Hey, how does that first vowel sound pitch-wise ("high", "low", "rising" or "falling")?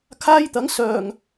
high